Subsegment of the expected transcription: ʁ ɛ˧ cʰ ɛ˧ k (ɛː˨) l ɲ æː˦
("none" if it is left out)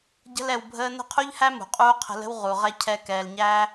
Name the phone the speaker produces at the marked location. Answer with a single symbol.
ɛː˨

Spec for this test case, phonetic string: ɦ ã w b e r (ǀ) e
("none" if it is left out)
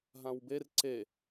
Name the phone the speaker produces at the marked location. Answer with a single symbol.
ǀ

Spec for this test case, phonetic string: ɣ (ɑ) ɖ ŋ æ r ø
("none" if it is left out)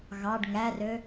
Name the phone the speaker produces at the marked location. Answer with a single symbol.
ɑ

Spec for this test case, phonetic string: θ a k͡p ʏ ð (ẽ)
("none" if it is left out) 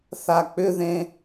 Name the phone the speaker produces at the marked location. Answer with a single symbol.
ẽ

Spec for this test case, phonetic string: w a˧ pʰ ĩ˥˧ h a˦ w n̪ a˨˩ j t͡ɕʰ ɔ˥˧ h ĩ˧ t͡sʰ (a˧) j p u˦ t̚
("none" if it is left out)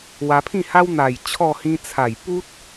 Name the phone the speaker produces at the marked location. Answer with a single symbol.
a˨˩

